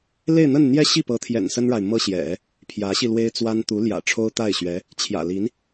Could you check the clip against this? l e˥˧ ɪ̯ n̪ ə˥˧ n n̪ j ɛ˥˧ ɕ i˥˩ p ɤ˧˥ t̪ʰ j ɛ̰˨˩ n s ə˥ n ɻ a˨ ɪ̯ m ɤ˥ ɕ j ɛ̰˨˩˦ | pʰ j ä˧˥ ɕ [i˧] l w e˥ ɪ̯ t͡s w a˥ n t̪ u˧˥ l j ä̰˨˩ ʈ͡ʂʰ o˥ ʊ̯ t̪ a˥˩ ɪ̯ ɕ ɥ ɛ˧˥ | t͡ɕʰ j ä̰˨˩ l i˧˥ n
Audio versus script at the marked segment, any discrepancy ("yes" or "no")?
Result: no